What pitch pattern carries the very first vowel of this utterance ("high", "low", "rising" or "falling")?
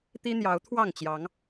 high